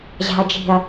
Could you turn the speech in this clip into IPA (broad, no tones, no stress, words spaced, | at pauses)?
ʑa̤ɐ̯d͡ʒi̤ɐ̯